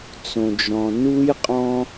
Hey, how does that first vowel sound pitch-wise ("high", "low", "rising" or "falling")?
low